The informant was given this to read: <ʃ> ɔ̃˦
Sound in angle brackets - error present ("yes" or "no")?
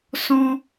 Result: yes